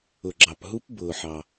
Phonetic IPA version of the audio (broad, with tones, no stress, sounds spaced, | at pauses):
ʊ˨ ɡ͡ǁ ɑ˨ p ɦ u˦˥ p b ʊː˨ ħ ɑ˨